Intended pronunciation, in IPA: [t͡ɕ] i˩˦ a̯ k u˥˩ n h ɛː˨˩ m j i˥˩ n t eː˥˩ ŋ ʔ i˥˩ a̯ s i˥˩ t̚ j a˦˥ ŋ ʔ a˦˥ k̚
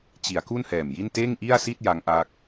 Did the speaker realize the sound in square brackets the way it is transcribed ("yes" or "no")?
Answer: yes